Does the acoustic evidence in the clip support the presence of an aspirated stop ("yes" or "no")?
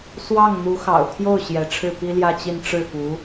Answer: yes